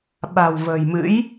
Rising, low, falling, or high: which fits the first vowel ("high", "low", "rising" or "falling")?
low